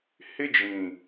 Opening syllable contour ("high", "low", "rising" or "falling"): high